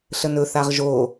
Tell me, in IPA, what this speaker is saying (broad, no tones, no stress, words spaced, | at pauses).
ɬənɵ θaʁʒo